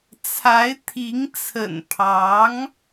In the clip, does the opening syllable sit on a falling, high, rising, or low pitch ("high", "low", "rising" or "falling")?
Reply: rising